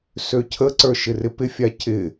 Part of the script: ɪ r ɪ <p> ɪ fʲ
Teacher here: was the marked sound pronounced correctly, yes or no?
yes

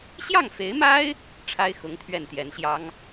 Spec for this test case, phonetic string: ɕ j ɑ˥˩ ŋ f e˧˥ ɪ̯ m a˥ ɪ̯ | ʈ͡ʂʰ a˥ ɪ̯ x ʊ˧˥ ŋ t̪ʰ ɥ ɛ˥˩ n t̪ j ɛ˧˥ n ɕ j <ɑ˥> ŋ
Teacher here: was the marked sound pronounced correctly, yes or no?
yes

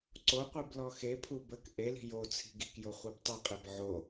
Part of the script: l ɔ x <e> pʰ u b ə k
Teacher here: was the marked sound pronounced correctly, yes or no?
yes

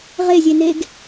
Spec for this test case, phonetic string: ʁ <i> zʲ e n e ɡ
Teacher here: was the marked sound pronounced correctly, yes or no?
no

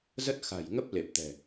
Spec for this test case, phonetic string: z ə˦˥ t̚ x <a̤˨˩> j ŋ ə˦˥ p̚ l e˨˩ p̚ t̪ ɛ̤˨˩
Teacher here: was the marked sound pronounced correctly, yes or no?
yes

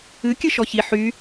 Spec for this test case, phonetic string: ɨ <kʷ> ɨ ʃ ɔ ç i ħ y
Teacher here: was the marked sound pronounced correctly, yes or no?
no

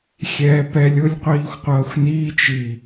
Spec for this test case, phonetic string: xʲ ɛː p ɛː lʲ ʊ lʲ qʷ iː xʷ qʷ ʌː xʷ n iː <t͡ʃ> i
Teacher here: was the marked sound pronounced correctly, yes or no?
yes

